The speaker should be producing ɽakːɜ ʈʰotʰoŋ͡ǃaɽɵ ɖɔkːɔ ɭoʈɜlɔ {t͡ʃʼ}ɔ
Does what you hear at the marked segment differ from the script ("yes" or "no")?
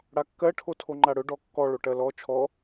yes